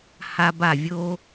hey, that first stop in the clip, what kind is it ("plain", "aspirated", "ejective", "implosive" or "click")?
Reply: plain